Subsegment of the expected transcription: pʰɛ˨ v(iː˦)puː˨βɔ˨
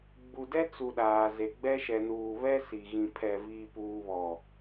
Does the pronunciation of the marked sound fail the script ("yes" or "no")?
yes